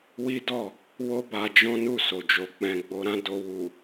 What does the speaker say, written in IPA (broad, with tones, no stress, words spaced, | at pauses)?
wi˦dɔ˦˨ | wo˦ ba˧ d͡ʒɔ̃˦nu˦˨ so˨d͡ʒo˨ k͡pɛ̃˨ ɡ͡bo˧ɾã˦ do˧ wu˨